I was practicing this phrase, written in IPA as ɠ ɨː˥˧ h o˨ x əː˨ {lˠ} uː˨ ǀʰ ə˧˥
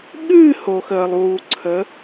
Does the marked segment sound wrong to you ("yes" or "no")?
no